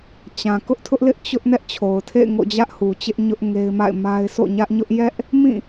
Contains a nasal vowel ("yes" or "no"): yes